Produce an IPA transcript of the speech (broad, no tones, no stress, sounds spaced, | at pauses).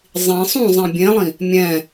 zˤ ĩ sˤ ũ zˤ ẽ bʲ ẽ lˠ ĩ | mʲ ɛ̃